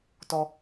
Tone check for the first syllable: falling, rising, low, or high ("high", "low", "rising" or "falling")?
high